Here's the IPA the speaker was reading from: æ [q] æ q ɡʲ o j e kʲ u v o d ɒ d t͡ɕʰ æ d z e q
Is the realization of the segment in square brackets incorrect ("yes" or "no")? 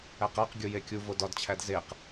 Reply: no